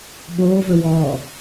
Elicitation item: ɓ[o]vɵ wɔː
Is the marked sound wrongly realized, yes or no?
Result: yes